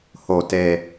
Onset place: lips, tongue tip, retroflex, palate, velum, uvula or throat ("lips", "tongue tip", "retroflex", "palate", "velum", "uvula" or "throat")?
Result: throat